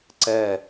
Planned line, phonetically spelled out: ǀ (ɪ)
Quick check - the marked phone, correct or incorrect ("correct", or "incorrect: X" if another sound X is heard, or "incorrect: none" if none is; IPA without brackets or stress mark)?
incorrect: ɛ